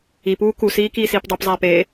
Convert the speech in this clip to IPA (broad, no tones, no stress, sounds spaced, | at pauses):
i p uː k u s iː k iː s iː p dˤ u p zˤ æː p eː